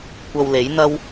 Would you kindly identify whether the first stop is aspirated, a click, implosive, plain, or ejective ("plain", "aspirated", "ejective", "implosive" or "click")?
plain